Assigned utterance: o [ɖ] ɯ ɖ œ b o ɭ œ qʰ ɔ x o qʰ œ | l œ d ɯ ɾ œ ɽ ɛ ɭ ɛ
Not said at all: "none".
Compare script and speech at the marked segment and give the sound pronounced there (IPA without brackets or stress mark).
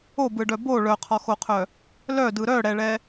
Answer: b